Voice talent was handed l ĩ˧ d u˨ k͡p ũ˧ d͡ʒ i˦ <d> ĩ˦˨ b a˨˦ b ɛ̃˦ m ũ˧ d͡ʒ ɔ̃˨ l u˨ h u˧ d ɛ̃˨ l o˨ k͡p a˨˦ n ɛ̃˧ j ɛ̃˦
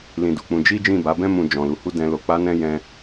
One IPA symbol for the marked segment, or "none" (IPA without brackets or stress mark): d͡ʒ